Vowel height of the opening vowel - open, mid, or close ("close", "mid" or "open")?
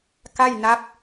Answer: open